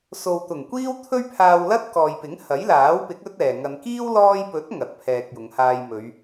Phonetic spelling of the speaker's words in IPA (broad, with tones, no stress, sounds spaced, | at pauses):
s o˨ w t̪ ʊ˨˩ ŋ kʷ iː˥ w t̪ʰ ɵ˥ ɥ pʰ aː˧ w l ɐ˥ t̚ k ɔː˨ j p ɪ˨˥ ŋ h ɐ˨˥ j l aː˨˥ w p ɪ˨˥ k̚ ɵ˥ t̚ ɛː˨ ŋ ɐ˧ n k iː˥ w l ɔː˧ j p ɵ˨˥ t̚ ŋ ɐ˨˥ t̚ pʰ ɛː˧ k̚ j ʊ˨˧ ŋ h aː˧ j m ɵ˨˧ ɥ